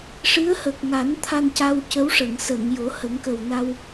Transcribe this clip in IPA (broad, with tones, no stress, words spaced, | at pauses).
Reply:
ʂɨ˧˥ə̯hə˨˩k̚ŋa˨˩˦n t̪ʰa˧nca˧wcə˧˥wʂə˨˩˨ŋ sə˨˩˨ŋ jo˨˩˦hə˨˩˦ŋkə˨˩wna˧w